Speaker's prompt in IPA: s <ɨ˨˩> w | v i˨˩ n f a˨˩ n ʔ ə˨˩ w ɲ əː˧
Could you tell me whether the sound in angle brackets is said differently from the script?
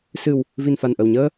no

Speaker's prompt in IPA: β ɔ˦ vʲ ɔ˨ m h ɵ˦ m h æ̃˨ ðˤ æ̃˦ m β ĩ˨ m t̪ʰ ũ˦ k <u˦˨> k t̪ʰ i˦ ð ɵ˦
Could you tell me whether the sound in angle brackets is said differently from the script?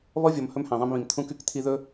yes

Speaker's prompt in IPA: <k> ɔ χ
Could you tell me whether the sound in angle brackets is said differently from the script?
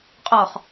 yes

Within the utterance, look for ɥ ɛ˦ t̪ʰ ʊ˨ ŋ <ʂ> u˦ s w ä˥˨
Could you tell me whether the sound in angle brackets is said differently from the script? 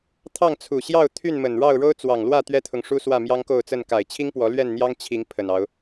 no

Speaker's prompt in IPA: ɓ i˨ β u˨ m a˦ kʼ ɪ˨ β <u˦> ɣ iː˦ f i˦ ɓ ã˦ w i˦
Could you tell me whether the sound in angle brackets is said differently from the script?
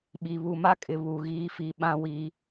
yes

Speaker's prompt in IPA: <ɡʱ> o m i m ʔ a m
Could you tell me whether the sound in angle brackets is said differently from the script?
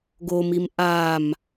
yes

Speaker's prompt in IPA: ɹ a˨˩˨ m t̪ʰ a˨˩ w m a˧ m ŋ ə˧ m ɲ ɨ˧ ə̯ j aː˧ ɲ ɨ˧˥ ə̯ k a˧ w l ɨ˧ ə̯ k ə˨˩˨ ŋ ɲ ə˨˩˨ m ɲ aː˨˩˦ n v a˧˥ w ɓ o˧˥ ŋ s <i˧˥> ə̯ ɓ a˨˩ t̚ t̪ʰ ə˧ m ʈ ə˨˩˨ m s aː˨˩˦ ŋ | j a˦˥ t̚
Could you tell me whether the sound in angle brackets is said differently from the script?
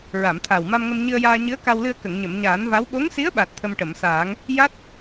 no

